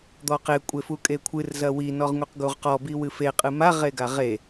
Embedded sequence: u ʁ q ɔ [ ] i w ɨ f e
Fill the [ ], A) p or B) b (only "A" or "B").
B